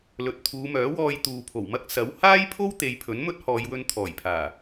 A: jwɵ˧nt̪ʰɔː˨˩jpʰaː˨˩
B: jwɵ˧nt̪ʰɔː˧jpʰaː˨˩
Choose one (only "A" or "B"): A